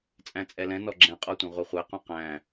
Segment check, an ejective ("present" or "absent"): present